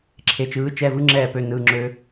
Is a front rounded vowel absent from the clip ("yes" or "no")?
no